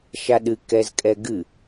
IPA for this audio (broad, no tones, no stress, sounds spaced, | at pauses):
ʃ a ɗ ɨ k ɛ z kʼ ɛ ɡ ɨ